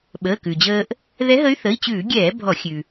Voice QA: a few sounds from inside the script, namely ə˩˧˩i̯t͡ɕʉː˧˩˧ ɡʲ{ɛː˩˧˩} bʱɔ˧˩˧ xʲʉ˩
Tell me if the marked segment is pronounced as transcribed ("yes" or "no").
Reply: no